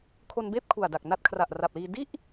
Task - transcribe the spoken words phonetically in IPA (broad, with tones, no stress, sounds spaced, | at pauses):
kʰ o˧ n b eː˥˩ p̚ kʰ u˨˩ a̯ d a˨˩ k̚ n a˦˥ t̚ kʰ r a˨˩ ʔ r a˨˩ p̚ l iː˧ d i˥˩ ʔ